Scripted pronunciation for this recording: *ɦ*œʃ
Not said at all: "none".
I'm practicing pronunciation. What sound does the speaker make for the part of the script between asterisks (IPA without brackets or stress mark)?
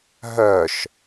ɦ